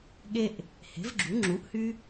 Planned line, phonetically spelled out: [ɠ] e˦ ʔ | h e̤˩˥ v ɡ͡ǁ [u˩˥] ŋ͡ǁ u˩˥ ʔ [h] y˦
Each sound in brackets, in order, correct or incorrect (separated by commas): correct, correct, correct